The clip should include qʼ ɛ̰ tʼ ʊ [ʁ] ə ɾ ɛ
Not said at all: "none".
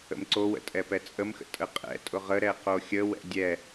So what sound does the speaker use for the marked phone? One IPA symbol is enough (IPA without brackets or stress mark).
ʁ